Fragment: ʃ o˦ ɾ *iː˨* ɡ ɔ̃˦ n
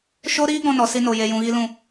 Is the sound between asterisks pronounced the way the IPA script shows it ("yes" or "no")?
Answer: no